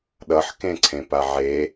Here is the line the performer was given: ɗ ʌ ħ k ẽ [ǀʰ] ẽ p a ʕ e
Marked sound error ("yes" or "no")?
no